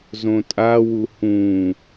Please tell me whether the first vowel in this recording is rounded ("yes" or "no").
yes